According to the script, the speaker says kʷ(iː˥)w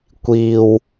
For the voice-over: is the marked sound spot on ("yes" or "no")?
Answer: no